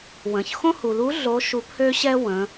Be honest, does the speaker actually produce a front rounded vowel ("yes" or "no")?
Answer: yes